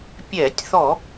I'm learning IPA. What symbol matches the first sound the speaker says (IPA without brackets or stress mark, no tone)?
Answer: pʲ